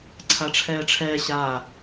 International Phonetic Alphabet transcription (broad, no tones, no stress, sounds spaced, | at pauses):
ǀʰ a ʈ͡ʂʰ ɛː ʈ͡ʂʰ ɛː ɕ a